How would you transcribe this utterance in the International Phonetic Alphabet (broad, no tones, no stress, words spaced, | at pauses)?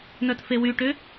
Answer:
nœtfewyʈʏ